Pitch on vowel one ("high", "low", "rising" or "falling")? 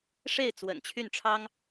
falling